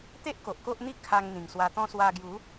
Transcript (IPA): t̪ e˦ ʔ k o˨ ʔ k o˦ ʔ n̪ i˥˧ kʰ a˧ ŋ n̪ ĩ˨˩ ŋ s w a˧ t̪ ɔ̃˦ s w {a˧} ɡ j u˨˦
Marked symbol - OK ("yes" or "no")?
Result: yes